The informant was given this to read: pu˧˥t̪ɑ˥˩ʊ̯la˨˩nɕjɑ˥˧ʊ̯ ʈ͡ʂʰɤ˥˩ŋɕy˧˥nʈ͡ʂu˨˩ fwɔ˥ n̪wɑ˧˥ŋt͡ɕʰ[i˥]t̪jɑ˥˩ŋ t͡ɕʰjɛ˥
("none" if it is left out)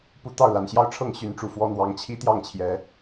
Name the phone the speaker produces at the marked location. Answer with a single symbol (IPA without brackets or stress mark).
i˥